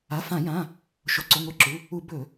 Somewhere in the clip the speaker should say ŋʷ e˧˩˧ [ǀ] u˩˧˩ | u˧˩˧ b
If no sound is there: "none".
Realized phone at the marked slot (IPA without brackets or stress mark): ǁ